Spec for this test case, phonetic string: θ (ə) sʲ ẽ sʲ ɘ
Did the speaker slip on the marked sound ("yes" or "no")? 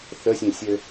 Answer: no